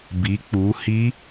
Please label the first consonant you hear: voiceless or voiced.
voiced